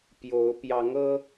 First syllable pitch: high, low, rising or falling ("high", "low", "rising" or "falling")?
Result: rising